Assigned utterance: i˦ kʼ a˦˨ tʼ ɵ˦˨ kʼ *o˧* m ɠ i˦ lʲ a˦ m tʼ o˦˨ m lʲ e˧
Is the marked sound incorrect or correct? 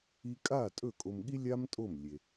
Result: correct